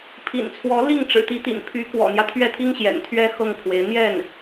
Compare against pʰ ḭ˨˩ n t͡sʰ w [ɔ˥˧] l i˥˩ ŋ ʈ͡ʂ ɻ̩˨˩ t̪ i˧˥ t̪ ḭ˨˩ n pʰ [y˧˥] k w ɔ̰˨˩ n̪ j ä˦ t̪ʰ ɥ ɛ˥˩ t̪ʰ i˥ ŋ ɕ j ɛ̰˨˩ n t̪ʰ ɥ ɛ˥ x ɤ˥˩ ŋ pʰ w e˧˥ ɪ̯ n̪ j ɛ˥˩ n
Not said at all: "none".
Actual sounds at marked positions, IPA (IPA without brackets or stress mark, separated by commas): ɔ˧˥, y˧˥